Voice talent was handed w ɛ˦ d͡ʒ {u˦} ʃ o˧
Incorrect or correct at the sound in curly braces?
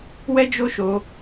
incorrect: o˦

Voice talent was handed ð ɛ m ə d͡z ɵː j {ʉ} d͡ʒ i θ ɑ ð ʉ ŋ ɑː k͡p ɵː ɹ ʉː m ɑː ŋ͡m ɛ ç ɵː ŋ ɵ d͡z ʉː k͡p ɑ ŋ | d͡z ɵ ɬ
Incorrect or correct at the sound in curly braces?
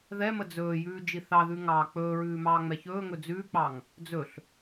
incorrect: ʉː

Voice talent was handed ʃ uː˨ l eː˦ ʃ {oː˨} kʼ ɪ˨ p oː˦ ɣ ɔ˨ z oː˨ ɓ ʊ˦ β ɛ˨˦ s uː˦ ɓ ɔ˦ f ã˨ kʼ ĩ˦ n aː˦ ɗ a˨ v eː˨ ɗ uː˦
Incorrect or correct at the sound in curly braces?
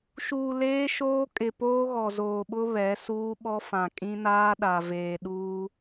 incorrect: oː˦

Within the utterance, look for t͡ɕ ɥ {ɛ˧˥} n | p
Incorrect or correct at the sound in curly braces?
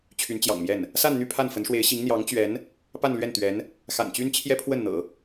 correct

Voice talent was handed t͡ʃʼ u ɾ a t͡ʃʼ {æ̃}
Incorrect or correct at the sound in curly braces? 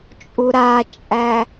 incorrect: æ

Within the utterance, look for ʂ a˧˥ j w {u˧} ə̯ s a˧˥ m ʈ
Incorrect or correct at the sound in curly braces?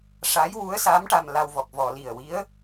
incorrect: u˧˥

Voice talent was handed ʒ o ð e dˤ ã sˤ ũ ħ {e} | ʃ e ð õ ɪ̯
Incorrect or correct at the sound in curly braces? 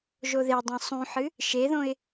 incorrect: ɨ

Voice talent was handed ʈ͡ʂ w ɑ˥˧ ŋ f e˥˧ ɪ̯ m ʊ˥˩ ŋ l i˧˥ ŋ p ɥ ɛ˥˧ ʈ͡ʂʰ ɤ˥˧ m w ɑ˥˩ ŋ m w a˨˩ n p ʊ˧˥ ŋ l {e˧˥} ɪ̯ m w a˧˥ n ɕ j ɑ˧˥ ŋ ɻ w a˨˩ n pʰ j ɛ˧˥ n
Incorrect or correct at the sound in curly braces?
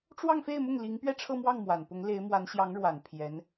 correct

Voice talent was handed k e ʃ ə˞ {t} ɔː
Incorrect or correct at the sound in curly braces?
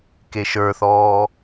incorrect: θ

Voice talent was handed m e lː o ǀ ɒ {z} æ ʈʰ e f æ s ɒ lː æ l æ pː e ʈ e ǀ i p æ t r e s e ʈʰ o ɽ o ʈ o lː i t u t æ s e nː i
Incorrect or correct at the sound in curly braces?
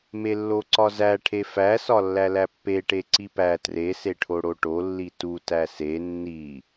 correct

